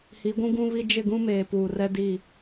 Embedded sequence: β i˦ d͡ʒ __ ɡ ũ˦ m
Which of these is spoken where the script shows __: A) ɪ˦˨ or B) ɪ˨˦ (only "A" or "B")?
A